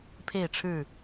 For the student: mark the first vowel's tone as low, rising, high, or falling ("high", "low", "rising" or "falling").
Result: falling